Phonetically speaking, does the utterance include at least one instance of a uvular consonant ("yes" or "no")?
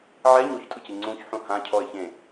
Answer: no